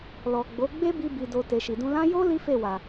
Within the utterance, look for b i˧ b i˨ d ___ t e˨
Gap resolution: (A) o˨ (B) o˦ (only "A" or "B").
A